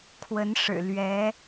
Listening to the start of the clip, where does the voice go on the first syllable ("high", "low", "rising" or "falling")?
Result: rising